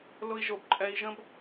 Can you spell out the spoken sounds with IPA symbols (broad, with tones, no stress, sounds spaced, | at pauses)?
l ʊ˧ i̯ ʒ o˨ b ǃʼ ɛ˧ i̯ ʒ ə̃˦ b